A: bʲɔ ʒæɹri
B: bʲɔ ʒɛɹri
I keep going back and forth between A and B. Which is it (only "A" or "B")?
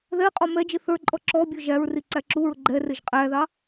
A